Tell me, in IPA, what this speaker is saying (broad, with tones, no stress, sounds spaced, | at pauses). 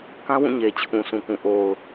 k ã˦ w ũ˦˨ ɲ e˨ t͡ɕʰ ũ˨ s ũ˨ k ũ˨ ʔ o˨ ʊ̯